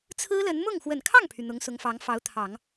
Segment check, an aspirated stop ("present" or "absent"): present